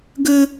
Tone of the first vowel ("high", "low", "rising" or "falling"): high